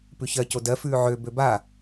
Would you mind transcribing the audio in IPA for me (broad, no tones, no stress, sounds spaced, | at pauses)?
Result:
p ʉ ç ɜ c o d ɜ f ʉː ʕ ø b ø b a